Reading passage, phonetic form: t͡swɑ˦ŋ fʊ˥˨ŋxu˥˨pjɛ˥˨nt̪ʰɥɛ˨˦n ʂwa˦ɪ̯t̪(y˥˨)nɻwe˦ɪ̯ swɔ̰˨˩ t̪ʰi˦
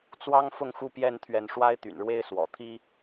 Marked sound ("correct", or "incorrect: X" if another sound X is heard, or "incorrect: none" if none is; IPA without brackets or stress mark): incorrect: y̰˨˩